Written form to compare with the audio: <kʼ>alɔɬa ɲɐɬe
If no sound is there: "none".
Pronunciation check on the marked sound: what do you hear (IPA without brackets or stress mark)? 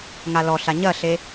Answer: ŋ